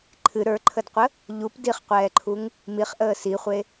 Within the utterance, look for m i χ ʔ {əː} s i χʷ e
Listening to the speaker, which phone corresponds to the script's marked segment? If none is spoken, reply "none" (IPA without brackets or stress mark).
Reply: əː